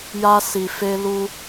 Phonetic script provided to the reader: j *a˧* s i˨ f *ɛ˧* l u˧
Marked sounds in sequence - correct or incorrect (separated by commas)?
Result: correct, incorrect